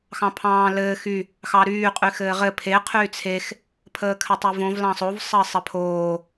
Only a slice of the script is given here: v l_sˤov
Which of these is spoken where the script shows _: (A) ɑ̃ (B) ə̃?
A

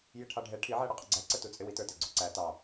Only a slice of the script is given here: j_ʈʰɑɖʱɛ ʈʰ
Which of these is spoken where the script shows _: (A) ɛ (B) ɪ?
B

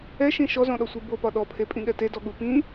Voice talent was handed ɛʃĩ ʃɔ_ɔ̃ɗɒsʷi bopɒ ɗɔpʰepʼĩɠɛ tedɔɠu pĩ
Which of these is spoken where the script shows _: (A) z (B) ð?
A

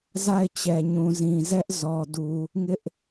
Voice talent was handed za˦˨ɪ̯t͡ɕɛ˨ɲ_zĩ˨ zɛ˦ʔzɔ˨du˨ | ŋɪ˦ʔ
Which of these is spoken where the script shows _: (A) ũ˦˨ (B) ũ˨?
B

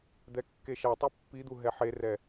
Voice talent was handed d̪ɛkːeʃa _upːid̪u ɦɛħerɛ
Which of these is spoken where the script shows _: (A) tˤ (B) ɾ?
A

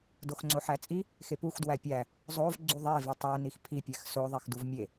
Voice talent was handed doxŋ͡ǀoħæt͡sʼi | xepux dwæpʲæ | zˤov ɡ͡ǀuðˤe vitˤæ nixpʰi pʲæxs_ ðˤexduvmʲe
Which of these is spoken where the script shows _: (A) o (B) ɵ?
A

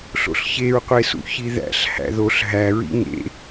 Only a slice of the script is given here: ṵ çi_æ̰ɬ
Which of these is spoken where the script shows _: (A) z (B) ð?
B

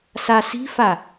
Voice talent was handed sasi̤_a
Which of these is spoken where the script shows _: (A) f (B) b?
A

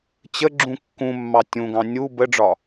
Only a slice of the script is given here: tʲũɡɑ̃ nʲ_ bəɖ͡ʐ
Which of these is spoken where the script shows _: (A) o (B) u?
B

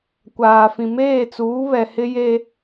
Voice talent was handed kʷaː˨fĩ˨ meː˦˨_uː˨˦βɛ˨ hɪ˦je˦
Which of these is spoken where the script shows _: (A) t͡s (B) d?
A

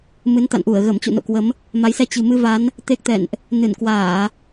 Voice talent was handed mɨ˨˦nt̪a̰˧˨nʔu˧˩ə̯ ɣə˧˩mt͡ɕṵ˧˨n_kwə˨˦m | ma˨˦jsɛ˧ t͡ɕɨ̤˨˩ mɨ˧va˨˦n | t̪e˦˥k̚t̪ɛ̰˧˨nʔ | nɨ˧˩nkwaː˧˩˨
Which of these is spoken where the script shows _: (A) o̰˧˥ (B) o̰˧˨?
B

